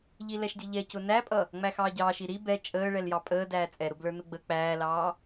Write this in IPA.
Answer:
ʎ i l ɛ ʃ dʲ ʌ ʎ ɛ c ʊ n æ pʼ ʌ | ŋ͡m æ x ɑː ɟ ɑː ʃ i ɾ i b ɛ t͡ʃʼ əː ɭ ɛ l j ɑ pʼ əː d æː t͡sʼ ɛ ɾ ʊ b l ə˞ n ʊ ɡ͡b ə k͡p æː l ɑː

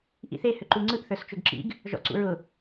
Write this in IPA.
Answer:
ʔ ḭ θ e h ʏ ǃ u ŋ͡ǀ ɯ ʔ θ ə˞ s t͡ʃ ʊ ɡ ǁ ḭ ɡ | ʒ ɔ̰ ǀ ṵ ɹ ʊ

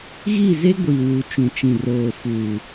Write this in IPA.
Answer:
ɣ i˦˨ z e˦ ɡʷ i˨ w u˨ t͡ʃ ũ˨ t͡ʃ ĩ˨ r oː˨ f uː˨

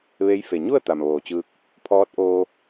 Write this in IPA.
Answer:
ʋ e˧˥ j f e˩ ɲ u˥˨ ə̯ t̪ a˩ m ʋ oː˩ t͡ɕ ɯː˧ k̚ | pʰ ɔː˧˥ t̚ ʔ oː˧

